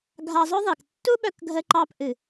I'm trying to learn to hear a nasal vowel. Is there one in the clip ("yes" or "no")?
no